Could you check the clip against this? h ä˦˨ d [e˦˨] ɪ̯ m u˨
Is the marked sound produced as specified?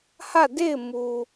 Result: yes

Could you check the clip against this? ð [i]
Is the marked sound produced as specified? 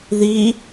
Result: yes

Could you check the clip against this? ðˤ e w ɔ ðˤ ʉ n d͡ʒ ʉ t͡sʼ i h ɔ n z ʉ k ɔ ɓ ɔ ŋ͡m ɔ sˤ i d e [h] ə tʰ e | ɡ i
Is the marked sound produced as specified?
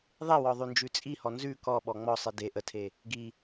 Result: no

